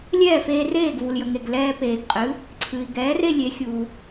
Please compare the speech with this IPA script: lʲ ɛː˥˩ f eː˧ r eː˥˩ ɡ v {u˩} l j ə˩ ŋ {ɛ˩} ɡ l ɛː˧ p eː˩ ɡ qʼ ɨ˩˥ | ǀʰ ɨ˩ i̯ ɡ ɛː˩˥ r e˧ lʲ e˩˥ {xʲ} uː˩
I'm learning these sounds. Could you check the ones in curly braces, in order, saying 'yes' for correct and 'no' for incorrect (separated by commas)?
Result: yes, no, yes